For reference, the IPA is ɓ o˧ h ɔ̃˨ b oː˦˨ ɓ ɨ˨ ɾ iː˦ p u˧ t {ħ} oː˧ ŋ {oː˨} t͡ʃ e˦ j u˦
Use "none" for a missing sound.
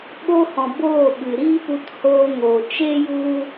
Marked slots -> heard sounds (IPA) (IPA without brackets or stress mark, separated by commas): h, oː˨